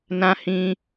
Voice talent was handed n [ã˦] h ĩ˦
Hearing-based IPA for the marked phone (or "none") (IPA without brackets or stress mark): ã˦